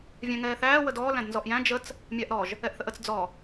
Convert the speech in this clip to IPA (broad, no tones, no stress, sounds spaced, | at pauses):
vʲ æ̃ ŋ ɛː θ æː w ə d ɔː l æ̃ d n z ɔ ʔ j æ̃ d͡ʒ ə t͡s | mʲ a ʔ ɾ ɔ ʒ | ɛ ʔ θ ə ʔ ə t͡s d͡z ɔ